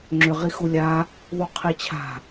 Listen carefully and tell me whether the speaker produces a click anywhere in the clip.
yes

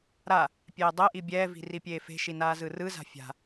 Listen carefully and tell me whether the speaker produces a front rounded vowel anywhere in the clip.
no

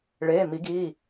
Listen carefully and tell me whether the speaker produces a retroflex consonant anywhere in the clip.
yes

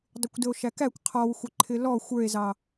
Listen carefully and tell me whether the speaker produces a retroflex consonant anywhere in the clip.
no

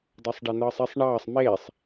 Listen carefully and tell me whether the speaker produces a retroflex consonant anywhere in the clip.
yes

